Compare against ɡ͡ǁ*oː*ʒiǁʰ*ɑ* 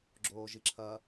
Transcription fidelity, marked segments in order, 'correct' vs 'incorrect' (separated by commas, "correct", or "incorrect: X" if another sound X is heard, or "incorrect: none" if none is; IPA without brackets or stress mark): correct, incorrect: ɐ